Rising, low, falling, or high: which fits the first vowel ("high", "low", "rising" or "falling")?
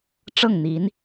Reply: falling